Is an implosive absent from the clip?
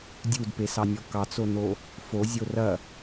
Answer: yes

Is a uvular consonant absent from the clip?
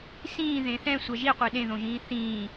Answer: no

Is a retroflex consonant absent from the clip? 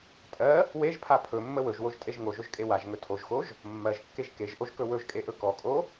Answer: yes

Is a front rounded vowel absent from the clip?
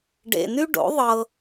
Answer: no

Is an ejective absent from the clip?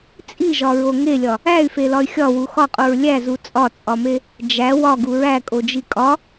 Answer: no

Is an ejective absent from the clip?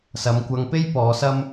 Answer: yes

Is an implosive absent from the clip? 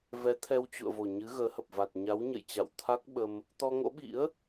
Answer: no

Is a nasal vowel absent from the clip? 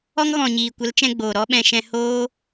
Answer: no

